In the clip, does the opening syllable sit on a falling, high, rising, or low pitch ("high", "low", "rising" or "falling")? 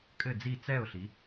falling